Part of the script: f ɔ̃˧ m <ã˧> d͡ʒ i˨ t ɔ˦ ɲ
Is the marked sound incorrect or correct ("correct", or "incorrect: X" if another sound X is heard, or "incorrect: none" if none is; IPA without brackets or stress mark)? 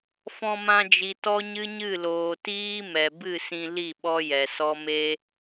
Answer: correct